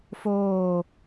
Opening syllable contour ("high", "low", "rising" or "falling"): falling